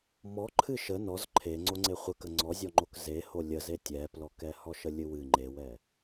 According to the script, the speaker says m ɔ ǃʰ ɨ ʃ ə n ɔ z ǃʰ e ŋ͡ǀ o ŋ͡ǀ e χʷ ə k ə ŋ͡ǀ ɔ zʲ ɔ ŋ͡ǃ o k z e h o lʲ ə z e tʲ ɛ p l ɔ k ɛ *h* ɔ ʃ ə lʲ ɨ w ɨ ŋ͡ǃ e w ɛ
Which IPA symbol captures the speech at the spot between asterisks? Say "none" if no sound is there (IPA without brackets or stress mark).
h